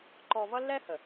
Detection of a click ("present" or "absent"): present